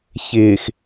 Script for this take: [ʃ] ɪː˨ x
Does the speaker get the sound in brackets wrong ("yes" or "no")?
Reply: yes